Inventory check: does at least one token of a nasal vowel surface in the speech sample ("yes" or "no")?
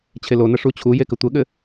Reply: no